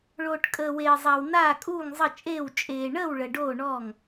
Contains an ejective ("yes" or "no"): yes